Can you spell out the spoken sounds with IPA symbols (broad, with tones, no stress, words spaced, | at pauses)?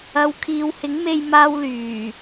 ɐ˧w kʰiː˨˧whɪ˨˥ŋme˧jmaː˧w lyː˨˩